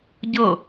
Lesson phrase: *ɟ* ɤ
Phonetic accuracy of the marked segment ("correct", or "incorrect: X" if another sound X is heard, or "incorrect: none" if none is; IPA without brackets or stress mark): correct